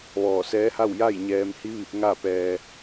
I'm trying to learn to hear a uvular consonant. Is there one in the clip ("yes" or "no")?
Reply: no